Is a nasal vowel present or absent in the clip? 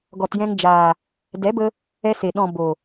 present